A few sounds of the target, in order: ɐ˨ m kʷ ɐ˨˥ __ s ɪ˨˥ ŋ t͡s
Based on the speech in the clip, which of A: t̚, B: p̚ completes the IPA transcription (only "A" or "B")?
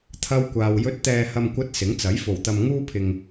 A